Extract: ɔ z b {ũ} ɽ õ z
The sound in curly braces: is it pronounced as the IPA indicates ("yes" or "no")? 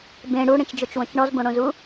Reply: no